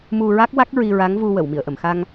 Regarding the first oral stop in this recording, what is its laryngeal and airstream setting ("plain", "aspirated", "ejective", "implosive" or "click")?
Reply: plain